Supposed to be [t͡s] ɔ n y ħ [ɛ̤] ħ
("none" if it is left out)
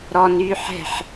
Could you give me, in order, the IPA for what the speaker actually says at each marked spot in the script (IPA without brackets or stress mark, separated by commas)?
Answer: ɾ, ɛ̤